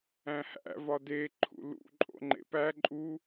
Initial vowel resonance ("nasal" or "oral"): nasal